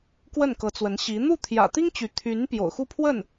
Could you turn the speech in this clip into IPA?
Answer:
k w ə˥˩ n k ɤ˧˥ t͡s w ə˧˥ n ɕ i˧˥ n̪ u˥˩ t̪ʰ j ä̰˨˩ t̪ i˥ ŋ t͡ɕ y˧˥ t̪ʰ y˧˥ n p j o̰˨˩ ʊ̯ x u˥˧ pʰ w ə˥˩ n

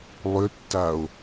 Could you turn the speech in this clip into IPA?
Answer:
lˠ ʏ tː a o̯

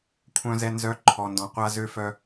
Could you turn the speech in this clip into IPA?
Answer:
kʷʰ œ̃˨ z ɛ˨ n z œ˨˦ ǃʰ ɔ˨ n d ɔ̃˨ qʷ a˦ z ø˦˨ f œ˦

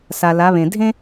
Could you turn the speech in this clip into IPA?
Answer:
s a˨ l a˨˦ β ẽ˨ dʱ ẽ˥

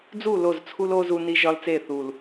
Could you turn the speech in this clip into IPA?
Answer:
d͡z u˦˨ l o˦˨ z t͡sʰ u˦ l o˦ z u˦ n i˦ ʒ ɒ˦ l t͡s e˦˨ θ u˨ l

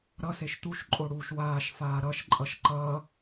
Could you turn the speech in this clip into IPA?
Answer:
ɾ ʌ s e ʃ t̪ u ʃ ǃʼ o ɽ uː ʃ w aː ʃ f aː ɾ ʌ ʃ ǃʼ ʌ ʃ ǃ ʌ

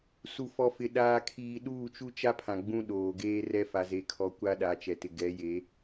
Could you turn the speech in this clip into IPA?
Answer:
s u˨ f ɔ˨ f ɪ˨ ɗ aː˦ kʰ iː˦ ɗ uː˦˨ t͡ʃ u˦ t͡ʃ a˦ pʰ ã˨ ɡ͡b ũ˦ ɗ oː˨ ɡ eː˦ r ɛ˦ f a˨ z e˨ kʰ ɔ˨ kʷ a˦ ɗ a˨˦ t͡ʃ ɛ˨ t ɪ˨ ɡ ɛ˨˦ j e˨˦

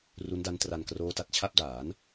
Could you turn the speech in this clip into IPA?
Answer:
r u˦˥ n d a˦˥ n t r a˧ n k r oː˦˥ t a˨˩ t̚ t͡ɕʰ a˥˩ p̚ d aː˩˦ n

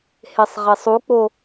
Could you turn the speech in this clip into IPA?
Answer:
h e sˤ ʁ e sˤ u k͡p o

